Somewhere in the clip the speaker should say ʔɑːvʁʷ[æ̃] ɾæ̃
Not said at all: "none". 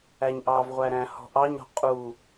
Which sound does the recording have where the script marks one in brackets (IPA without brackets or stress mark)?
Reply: æ